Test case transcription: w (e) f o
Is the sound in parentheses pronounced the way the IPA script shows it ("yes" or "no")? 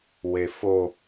yes